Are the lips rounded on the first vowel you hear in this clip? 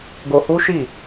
yes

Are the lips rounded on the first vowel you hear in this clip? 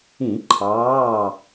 no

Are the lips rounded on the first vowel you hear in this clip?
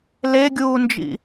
no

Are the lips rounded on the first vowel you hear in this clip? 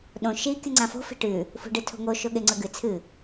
yes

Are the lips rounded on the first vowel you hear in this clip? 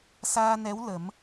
no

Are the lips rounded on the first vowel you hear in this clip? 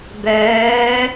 yes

